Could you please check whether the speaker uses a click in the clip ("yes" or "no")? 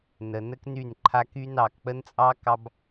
yes